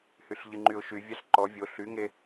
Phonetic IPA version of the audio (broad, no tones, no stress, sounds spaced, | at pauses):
h y ɬ ʎ ɨ ŋ͡ǃ y ʊ̯ ʃ y vʲ a ɬ ǃ ɔ vʲ o ɬ y ŋ e